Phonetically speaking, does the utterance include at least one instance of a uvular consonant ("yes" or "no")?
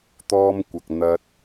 no